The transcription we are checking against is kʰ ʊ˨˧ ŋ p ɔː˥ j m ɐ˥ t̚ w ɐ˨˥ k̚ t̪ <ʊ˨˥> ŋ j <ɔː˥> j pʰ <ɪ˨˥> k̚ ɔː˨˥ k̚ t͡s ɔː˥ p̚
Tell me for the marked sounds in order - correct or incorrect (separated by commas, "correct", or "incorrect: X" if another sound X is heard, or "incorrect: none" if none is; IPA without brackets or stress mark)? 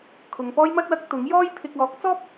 correct, correct, incorrect: ɪ˧